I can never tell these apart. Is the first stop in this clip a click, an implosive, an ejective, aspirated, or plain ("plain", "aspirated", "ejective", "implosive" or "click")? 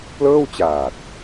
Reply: plain